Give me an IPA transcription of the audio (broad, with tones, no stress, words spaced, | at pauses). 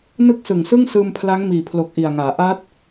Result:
nɯ˥˩k̚sɯ˨˩ŋsɯ˥˩ŋ sɯː˧mpʰla˦˥ŋmiː˨˩pʰlo˨˩k̚ ʔi˨˩a̯ŋaː˩˦ ʔaː˦˥t̚